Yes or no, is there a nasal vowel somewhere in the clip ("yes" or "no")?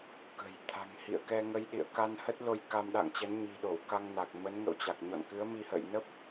no